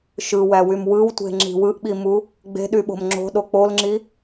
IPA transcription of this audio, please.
ʃɯwæwym wɯwtʷe̤ŋ͡ǁi̤ wɯʔɓimu | ɡ͡be̤ɗyɓo̤m ŋ͡ǁo̤ɗo k͡polŋ͡ǁi

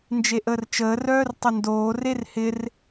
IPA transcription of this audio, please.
nd͡ʒeʔəːrt͡ʃəː rœːrtˤəndoː rerhɪr

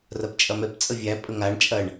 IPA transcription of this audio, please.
rɐpt͡ʃʼɐmɛp t͡sʼəvʲæ pʼəŋaɳ t͡ʃʼɐɳ

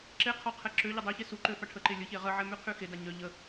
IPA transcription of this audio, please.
ǁe qʰɔqʰɛ ǁø ʎədˤøçe suǃø faʈʰəǃe lʲəçe ʁəʕɛ myqʰyxeda ɲœ ʎə

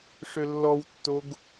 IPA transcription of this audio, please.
ʂʏlːɔwtːoɡ

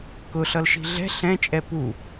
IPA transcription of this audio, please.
kʊ ɬʌlʃi̤ɮɛ̤ ɬɛ̃t͡ʃʼɛ pu

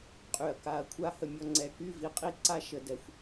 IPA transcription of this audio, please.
qʼy˧˩ɐ̯ ka˧˩ɐ̯kʷʰa˥ hə˧mʲɔ˥˧ ŋ͡ǀɛ˧ky˥˧vi˧ qʼi˥ǀa˥ ʃə˧ dɛ˧xʷ

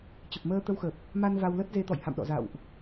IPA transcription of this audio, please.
t͡ɕə˨˩p̚məː˧t̪ə˧wxə˨˩p̚ | ma˧n va˧wlə˦˥t̚ ze˨˦t̪ɔ̰˧˨jha̰˧˨mɗɔ̰˧˨ za̰˧˨wʔ

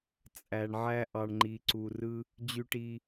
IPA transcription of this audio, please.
t͡sʼæ˩ɳʕæ˧ ʔɑ˩ɳŋ͡ǃi˩ǀu˩rɯ˧ | d͡ʑy˧ʈi˧

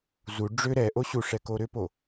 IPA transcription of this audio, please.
zu ɖ͡ʐʏ ɾɛʔo ɕuʂɛ koɾʏpo

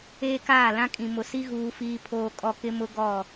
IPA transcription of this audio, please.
eː˦kaː˦˨lã˦kʼĩ˨ mʊ˨si˦ ɣuː˦fiː˦ pʰoː˦kʼɔ˦ kɪ˦mʊ˦ ɡɔ˦˨

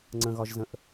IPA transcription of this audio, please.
ŋ͡ǀə̃ɣɒʒzə̃ʔ

